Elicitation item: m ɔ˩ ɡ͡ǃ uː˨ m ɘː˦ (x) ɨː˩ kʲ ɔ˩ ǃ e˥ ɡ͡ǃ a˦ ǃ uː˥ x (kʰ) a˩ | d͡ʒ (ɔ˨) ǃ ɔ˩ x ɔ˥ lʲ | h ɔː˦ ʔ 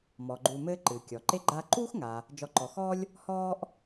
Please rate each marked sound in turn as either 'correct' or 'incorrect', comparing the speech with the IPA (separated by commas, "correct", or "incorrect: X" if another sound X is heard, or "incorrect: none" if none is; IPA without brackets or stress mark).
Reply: incorrect: ǃ, incorrect: ŋ, correct